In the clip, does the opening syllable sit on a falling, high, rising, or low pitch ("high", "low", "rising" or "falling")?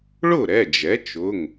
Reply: falling